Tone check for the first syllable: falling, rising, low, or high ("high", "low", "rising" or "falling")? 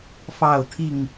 falling